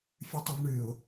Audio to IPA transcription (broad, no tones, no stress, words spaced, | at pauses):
fʲʉtˤɨvɳɨʊ̯